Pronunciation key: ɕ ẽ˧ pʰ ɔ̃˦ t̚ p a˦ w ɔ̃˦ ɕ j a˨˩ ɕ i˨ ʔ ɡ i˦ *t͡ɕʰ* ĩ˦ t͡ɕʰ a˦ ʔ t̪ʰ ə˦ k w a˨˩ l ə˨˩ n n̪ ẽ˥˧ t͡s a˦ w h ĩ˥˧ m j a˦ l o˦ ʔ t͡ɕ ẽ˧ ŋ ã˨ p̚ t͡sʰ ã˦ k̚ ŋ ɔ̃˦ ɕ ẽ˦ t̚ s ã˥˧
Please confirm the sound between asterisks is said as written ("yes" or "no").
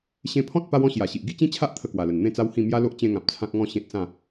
no